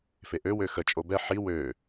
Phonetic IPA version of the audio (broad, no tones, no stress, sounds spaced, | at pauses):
f e ʔ ø w ø x ə t͡ʃʼ o b ɛ ħ i w ø